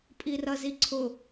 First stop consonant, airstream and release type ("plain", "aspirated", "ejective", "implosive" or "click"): ejective